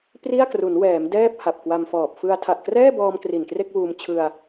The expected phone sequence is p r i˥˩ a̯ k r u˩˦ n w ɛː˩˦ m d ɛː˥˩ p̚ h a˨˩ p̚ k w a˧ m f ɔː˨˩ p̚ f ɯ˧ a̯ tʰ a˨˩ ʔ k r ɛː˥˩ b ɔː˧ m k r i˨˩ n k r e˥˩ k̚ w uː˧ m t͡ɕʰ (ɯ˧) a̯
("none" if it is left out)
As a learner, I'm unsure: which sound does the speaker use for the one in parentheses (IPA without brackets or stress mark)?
ɯ˧